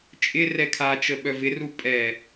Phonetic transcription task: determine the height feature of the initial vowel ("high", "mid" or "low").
high